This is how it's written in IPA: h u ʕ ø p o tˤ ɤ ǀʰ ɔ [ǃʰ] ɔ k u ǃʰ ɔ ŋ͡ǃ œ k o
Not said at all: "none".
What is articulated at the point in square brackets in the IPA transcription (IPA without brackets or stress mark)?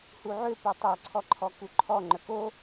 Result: ǃʰ